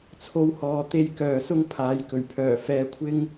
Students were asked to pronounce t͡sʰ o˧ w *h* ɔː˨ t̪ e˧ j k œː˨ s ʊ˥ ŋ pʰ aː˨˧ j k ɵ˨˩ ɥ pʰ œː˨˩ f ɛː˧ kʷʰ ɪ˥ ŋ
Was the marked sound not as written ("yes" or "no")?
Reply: no